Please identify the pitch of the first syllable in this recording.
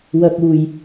low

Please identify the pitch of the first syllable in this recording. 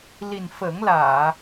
low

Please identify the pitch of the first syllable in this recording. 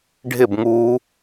falling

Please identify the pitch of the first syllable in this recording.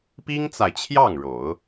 high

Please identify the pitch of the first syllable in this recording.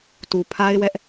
low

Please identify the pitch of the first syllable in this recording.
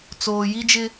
low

